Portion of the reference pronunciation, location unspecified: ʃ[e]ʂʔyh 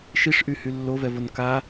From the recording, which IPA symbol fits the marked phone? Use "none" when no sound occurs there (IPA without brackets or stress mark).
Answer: i